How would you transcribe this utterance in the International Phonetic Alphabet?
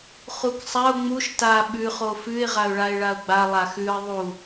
χ u k sˤ a ʊ̯ ŋ͡m u ʃ t a ɓ ʉ χ o f ʉ ɪ̯ ʁ a ʊ̯ ɭ a ɪ̯ ɭ a ʊ̯ ɡ͡b a lˠ a x ʉ ə̯ ðˤ u

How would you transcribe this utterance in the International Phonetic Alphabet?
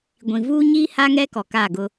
ɡʷ ĩ˨ v uː˦ ɲ iː˦ h a˦ ŋ ɛ˦ k ɔ˨ k aː˦˨ ɡ ʊ˦

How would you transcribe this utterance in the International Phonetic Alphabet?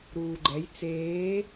ɾ uː ɡ͡ǃ ɛ j t͡s eː

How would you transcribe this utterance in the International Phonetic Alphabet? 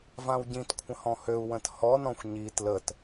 v ã w ɟ ĩ t kʷʰ ə̃ h ɔ̃ h ø u̯ w ə̃ t h ɔ n ɔ̃ xʷ ɲ i t l ə t

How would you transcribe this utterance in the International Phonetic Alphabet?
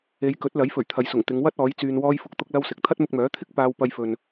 e˨˧ j k ɵ˨˥ t̚ l ɐ˨˥ j f ɵ˨˩ ɥ t̪ʰ ɐ˨ j s ʊ˨˩ ŋ t̪ ɪ˨˧ ŋ w ɐ˥ t̚ ɔː˨˥ j t͡s yː˧ n w ɔː˥ j f ʊ˧ k̚ t̪ ʊ˥ k̚ l ɐ˥ w s ɪ˨ k̚ t̪ʰ ɐ˥ t̚ m ʊ˧ k̚ m œː˨˥ t̪ʰ ɪ˥ k̚ p aː˧ w p ɐ˧ j f ɵ˨ n

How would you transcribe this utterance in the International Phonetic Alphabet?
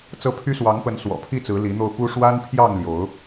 t͡s ɤ˦ pʰ y˦ s w ɑ˨˦ ŋ p ə˨˦ n s w ɔ̰˨˩ pʰ i˥˨ t͡s ɹ̩˨˦ l i˨˦ n̪ o˧ ʊ̯ p u˦ ʂ w a˦ n pʰ j ɑ˥˨ ŋ l j o˨˦ ʊ̯

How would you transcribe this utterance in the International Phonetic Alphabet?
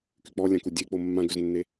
k y k͡p ɔ lʲ ã k u dʲ e k͡p o mː ã ɡ ø z nː e

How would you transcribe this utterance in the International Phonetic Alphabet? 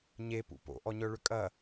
ɲ e p ṵ p o̰ ʔ ɔ ɲ œ ɭ ʏ kʼ ɐ

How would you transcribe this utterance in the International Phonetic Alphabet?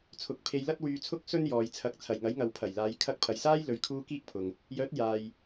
t͡sʰ ʊ˨˥ k̚ pʰ e˧ j l ɐ˥ t̚ w yː˧ t͡sʰ ʊ˥ k̚ s ɵ˥ n j ɔː˨ j t͡sʰ ɐ˨˥ k̚ t͡sʰ ɐ˨˩ j ŋ ɐ˨˥ j ŋ ɐ˨ w pʰ ɐ˨˩ j l aː˨˧ j kʰ ɐ˧ k̚ pʰ ɐ˨ j s aː˥ j l ɵ˨ ɥ kʰ uː˧ k iː˥ k̚ pʰ ʊ˨ ŋ | j œː˨˥ t̚ j aː˨ j

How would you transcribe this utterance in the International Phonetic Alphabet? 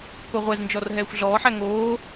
k o ʁʷ ɛ z n d͡ʒ ɔ r ɦ ɛː xʷ ɮ ɔː ħ æ ŋ oː

